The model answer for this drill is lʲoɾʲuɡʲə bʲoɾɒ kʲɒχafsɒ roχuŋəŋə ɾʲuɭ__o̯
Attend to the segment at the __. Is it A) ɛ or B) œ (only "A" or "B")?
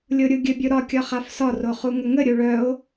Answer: B